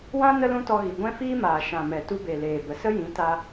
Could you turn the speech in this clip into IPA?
wã˦ nə˦lũ˦tɔ˧ɣi˨ ɡʷɛ̃˦fiː˦maː˨ ʃã˨mɛ˨ tu˧be˨ leː˨bə˨ sə˦jĩ˨˦ta˧

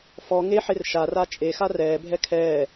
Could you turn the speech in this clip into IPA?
fɔ ŋeħer ʃara t͡ʃʼexa rɛːbʱɛ kʰɛː

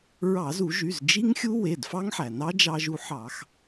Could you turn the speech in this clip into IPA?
ɹɑ˧˩˧zu˧˩˧ʒy˩˧˩z d͡ʒi˦˥ŋxʲu˦˥ we˩˧˩dfɑ˦˥ŋħæ˩ nɑ˦˥d͡ʒɑ˧ʒu˧ħɑ˧˩˧x

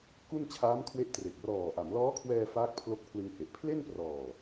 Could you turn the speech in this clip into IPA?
ku˥˩n t͡ɕʰaː˦˥mkʰwe˦˥ʔtre˨˩k̚ rɔː˨˩ʔa˩˦m lɔː˦˥kʰwɛː˧ faː˦˥k̚pʰlo˦˥k̚pʰlɯ˧ŋhe˨˩ʔ pʰle˥˩nprɔː˨˩

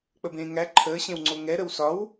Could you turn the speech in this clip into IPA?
k͡pəbẽːŋæ ǃʰəːɕẽwŋ͡ǀo ŋɛ ɾəwsɒw

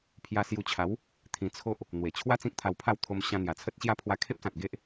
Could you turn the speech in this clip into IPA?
pʰja˧sju˧t͡ɕʰa˨˦w | t̪ʰĩ˧t͡sʰo˦ʔ | n̪we˨˩t͡ɕʰwa˦ t͡sĩ˦k̚t̪ʰa˧wpʰa˥˧w t̪ʰo˧m ɕã˧n̪ja˨˩t͡sʰə˦t̚ɕja˦ pʰwa˧kʰe˦p̚sã˨t̚ ɡe˦ʔ

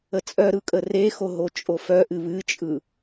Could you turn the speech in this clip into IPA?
ət͡sʼœɾɯ kʼərexo ɦot͡ʃʼofœʔɨ βɨt͡ʃʼɯ

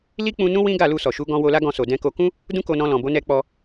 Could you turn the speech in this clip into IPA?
li˦k͡pũ˧nũ˦ wĩ˦ɡa˦˨lu˧ sɔ˨ʃu˨˦ ɡɔ̃˧ wo˧la˦ɡɔ̃˧so˨ dɛ̃˧ko˧ kũ˦ | dũ˦ko˧nɔ̃˧ lɔ̃˨bo˨˦ nɛ˧k͡pɔ˧

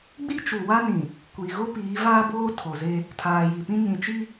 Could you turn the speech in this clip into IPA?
ɡ͡bi˦t͡ʃu˨wa˦nĩ˨ | kʷi˨ɣo˦ piː˨˦vaː˦boː˦ tʰo˨ze˦ | tʰaː˨ji˨pĩ˦ ɲĩ˨t͡ʃi˦

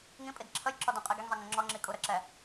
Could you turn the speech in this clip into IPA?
ŋĩpʼid ǁʰəjǁɔ dũqʼiɡiŋzˤi ŋə̃ŋ͡ǁɔŋ͡ǁi kʼuɾəǁɛ

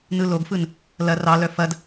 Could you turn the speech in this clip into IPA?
nɯloɡfɯn | lɐ rɑlœ fɐd

